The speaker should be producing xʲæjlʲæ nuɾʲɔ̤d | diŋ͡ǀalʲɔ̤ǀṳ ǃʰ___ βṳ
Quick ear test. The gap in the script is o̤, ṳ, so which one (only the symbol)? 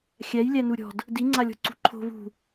o̤